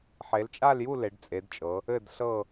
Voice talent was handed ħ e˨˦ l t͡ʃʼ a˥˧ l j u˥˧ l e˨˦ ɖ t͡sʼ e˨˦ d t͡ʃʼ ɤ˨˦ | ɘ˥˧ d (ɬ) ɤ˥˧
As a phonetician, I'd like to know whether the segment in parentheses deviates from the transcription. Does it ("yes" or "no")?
no